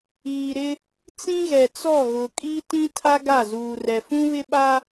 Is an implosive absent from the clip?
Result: no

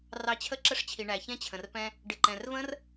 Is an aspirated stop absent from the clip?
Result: no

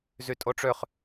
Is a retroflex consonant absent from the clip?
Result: no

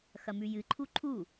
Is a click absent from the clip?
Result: no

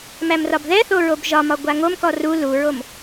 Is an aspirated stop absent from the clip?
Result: yes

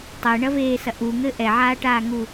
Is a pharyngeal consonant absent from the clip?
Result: no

